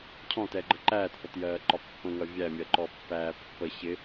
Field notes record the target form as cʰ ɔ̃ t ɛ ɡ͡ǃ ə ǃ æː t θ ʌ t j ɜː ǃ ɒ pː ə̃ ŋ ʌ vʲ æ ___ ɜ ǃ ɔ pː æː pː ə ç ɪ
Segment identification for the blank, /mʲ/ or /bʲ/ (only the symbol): mʲ